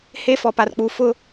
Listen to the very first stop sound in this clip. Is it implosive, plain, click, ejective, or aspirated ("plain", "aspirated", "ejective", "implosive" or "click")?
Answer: plain